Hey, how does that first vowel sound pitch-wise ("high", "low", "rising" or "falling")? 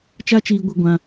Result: high